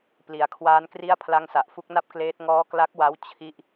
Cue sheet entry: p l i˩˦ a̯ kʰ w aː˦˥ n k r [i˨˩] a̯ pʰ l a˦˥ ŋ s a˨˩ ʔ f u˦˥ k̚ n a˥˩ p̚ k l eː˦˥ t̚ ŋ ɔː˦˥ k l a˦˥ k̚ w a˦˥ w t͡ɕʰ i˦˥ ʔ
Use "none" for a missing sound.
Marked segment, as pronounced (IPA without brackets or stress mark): i˥˩